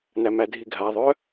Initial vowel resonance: oral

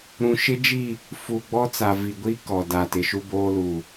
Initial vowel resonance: nasal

